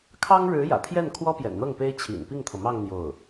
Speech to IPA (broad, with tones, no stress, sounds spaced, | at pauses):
kʰ ɑ˥ ŋ ɻ ɻ̩˧˥ j ä̰˨˩ t̪ʰ j ɛ˥˩ n kʰ w ɔ˥ p j ɛ̰˨˩ n n̪ ɤ˥˩ ŋ p e˥ ɪ̯ t͡ɕʰ ḭ˨˩ n p i˥˩ ŋ t̪ʰ ɤ˩ m ɑ˥˧ ŋ n̪ j o˥˩ ʊ̯